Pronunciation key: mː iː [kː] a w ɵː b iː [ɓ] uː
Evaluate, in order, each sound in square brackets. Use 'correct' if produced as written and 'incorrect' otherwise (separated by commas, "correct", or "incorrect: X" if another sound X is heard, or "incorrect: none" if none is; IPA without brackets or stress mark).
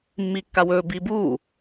correct, incorrect: b